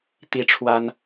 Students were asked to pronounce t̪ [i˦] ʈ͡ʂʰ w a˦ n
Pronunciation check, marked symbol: correct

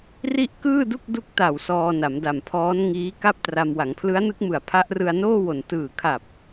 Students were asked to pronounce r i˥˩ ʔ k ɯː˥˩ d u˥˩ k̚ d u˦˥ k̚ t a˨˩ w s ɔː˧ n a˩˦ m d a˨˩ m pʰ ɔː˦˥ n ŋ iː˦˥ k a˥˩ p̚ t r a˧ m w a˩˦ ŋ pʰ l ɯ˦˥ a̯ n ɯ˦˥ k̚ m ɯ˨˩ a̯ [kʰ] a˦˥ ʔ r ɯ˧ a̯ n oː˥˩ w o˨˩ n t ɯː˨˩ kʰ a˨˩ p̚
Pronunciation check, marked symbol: incorrect: pʰ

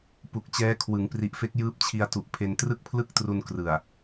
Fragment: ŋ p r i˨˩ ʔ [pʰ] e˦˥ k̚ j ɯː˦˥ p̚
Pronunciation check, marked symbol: incorrect: f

